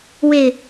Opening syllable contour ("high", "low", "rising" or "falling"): low